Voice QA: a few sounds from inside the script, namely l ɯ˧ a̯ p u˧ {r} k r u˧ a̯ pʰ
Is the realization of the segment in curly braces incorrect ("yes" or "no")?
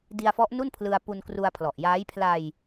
yes